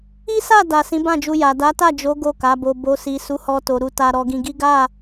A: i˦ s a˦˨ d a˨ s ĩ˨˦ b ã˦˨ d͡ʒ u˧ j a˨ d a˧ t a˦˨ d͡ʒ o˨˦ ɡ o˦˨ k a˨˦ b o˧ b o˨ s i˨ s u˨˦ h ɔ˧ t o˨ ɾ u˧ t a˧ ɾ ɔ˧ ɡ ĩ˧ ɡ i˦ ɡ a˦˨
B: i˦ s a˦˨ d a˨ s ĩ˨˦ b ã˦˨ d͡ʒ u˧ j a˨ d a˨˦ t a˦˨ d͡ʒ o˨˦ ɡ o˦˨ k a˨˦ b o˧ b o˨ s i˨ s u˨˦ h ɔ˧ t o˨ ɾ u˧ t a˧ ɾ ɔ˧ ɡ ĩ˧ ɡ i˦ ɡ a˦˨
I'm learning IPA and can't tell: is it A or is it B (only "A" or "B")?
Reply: B